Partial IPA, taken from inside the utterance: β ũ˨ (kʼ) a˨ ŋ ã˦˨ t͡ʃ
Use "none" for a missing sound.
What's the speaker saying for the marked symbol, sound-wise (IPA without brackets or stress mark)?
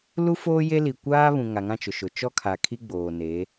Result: ŋ